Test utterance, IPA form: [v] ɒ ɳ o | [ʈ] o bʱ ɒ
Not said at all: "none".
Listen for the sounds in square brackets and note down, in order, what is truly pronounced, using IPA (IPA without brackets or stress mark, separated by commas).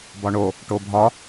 b, ʈ